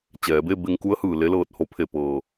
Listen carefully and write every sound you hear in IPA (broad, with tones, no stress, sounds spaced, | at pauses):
t͡ɕ ɛː˩˧ b e˥˨ b e˧ ŋ k u˧˥ ə̯ h ɯː˩ l e˧˥ l ɤː˧˩ t̚ h o˧ pʰ e˧˩ p ɤː˩